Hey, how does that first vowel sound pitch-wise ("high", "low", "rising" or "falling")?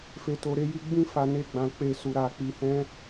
low